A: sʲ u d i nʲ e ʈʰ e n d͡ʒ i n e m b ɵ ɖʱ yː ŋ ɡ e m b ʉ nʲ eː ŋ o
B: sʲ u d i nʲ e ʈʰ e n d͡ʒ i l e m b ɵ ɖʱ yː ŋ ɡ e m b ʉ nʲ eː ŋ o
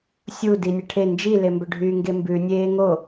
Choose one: B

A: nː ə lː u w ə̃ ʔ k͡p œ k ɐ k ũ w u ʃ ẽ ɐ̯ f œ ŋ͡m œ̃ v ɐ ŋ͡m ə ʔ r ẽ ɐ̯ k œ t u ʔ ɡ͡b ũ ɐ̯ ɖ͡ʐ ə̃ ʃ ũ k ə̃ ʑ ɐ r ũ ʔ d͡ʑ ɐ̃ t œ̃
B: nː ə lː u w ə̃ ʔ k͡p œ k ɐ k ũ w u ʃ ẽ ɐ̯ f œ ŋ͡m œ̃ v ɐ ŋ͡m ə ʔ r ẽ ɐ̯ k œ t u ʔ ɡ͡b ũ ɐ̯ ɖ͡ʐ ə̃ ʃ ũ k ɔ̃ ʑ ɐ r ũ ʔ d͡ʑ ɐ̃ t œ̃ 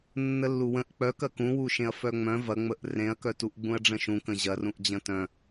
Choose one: A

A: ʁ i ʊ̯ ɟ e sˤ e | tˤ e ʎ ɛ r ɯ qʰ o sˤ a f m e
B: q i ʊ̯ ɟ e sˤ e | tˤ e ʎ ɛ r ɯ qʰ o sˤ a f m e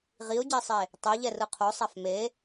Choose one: A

